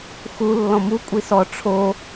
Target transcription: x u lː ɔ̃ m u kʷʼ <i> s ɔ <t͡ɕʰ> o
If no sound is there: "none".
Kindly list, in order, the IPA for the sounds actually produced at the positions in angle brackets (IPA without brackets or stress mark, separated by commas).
i, ʈ͡ʂʰ